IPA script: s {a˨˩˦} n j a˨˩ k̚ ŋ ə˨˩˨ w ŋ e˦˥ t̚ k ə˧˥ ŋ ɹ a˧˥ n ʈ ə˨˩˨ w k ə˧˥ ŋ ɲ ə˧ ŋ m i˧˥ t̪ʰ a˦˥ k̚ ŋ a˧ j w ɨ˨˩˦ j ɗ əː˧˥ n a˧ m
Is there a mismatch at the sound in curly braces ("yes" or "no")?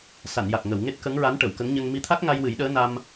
yes